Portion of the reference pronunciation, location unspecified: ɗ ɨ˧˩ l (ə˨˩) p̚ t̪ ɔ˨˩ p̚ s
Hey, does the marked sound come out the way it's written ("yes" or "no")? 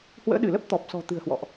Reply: no